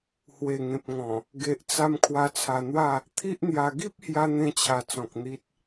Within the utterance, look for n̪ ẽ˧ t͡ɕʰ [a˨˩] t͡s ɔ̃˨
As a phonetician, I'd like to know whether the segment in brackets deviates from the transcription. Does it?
no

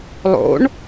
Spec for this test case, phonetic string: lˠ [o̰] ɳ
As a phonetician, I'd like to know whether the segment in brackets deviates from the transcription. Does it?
no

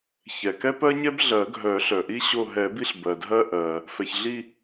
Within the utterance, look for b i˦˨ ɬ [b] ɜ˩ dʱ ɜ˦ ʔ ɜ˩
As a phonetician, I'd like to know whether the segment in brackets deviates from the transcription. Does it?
no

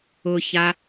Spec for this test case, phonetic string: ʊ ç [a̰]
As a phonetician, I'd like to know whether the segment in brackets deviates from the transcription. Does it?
yes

